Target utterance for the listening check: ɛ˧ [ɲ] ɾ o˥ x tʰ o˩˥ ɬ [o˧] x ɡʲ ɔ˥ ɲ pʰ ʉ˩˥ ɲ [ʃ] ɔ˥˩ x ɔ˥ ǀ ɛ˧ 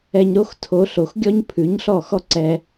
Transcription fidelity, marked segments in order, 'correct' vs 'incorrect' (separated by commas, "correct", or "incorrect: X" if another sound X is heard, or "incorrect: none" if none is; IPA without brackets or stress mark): correct, incorrect: o˩, incorrect: ɬ